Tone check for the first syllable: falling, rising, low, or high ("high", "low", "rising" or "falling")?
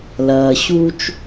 low